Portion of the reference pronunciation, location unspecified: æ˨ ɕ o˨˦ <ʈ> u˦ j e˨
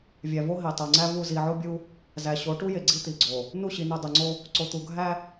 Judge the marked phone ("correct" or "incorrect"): correct